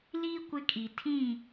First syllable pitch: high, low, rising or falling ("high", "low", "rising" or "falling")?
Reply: high